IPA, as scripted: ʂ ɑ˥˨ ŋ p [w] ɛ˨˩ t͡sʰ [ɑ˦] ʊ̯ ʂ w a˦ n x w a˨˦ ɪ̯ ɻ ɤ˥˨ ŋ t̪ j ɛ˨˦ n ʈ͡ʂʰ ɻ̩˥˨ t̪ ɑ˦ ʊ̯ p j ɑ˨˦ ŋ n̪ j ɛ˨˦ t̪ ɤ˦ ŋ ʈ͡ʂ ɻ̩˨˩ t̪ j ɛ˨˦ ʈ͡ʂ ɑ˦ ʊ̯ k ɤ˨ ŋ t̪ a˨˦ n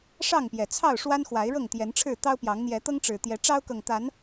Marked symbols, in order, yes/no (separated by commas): no, no